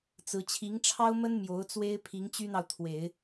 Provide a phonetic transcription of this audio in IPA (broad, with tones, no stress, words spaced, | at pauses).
t͡sɹ̩˧˥ t͡ɕʰi˧˥ŋʈ͡ʂʰɑ˥ʊ̯mə˥n mjo˧˥ʊ̯t͡swe˥ɪ̯ pʰi˧˥ŋt͡ɕy˥n̪ɑ˨ʊ̯ t̪ʰwe˨˩˦ɪ̯